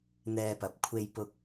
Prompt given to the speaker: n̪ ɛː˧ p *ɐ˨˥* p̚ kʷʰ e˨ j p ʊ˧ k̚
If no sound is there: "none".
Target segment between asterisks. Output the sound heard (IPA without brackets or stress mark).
ɐ˨˥